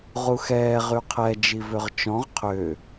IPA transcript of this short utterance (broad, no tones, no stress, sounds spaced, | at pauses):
ʁ u x ɛː ʁ y qʰ ɛ d͡ʒ i v ø ʁ t͡ʃ ɔ̃ ʁ qʰ ø